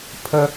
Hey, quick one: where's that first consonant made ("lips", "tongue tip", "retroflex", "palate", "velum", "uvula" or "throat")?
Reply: lips